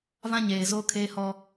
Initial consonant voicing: voiced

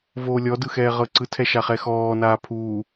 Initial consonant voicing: voiced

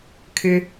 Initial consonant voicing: voiceless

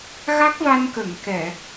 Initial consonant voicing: voiced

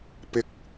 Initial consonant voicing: voiceless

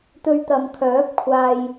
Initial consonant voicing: voiceless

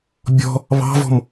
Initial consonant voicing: voiced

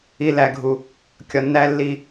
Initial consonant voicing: voiced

